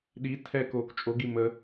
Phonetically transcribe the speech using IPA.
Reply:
ɗ i tʰ ɛ k oː k t͡ʃʼ o ɡ i m ə

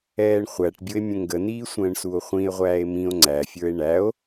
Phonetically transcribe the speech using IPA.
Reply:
ɛː ɳ χʷ æ ʈ bʲ ʊ e̯ mʲ ə̃ ŋ ɡ ə n iː sʷ ə̃ː ɳ s u o̯ χʷ ĩ e̯ ʁʷ æː e̯ m ĩ o̯ ŋ͡ǀ æ fʲ ə˞ e̯ ɳ æ o̯

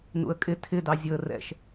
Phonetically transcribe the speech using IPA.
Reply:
n ṵ ə̯ kʼ ɪ tʰ ɪ d ɑ zʲ ʊ ə̯ r ɛ̰ ʃ

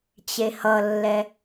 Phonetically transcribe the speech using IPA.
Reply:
t͡ɕ e h ʌ lː ɛ

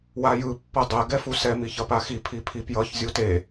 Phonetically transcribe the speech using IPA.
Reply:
w a j ɯ pː ʌ dˤ ɛ ɡ ɛ f u s ɛ m i ç ʌ p a x i pʰ i pʰ i p j ʌ ç zʲ u t e

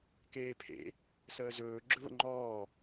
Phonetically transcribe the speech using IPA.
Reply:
k eː pʰ ḛ | s əː z ɵː ɡ͡ǁ ɵ β ə̰ ŋ͡ǃ ɔː

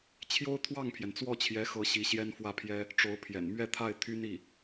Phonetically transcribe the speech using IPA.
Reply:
t͡ɕʰ j o˥ ʊ̯ t̪ʰ w ɑ˥˩ ŋ pʰ j ɛ˩ n t͡s w ɔ˥˩ t͡ɕʰ j ɛ˧˥ x ɤ˧˥ ɕ i˧˥ ɕ j ɛ˥ n f w ä˥˩ pʰ j ɛ˥ | ʈ͡ʂ o˧˥ ʊ̯ pʰ j ɛ̰˨˩ n m ɥ ɛ˥˧ t̪ʰ a˥˩ ɪ̯ t̪ʰ y˥ n i˥˩

